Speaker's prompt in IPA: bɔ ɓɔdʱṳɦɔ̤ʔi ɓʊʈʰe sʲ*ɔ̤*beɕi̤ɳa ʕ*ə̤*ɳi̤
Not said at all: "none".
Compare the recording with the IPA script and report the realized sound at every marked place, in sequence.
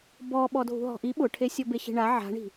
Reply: ɔ, a̤

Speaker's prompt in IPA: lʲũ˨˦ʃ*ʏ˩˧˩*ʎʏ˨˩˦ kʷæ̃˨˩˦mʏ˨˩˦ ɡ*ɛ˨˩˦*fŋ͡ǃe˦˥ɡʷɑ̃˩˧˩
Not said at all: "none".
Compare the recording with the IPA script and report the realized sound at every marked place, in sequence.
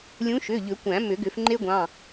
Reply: ʏ˩˧˩, ʏ˨˩˦

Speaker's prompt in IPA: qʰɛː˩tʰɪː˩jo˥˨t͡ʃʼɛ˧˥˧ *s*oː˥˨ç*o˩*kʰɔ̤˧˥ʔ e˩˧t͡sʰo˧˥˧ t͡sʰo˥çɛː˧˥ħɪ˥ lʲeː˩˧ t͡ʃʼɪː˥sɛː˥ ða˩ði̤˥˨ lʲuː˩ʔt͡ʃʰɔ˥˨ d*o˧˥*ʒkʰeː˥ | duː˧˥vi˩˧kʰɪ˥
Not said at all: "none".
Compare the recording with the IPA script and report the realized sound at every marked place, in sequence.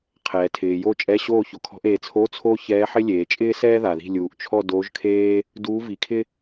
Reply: ɕ, o˩, o˧˥

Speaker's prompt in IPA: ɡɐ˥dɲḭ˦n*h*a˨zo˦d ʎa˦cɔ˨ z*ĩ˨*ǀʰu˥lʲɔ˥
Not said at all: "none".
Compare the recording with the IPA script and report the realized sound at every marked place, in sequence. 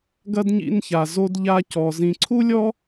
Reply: ç, ĩ˨

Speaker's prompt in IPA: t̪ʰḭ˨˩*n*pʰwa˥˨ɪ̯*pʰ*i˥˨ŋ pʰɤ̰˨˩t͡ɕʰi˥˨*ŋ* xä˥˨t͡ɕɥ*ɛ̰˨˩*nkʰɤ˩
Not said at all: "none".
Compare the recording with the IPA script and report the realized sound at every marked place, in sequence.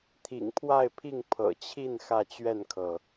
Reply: ŋ, pʰ, n, ɛ˥˨

